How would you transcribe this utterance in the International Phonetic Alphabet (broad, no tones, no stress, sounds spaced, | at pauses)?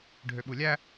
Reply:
ɖʱ ø ɓ u lʲ æ